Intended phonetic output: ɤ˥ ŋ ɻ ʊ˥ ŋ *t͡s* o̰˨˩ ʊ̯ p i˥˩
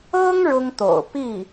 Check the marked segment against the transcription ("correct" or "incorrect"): incorrect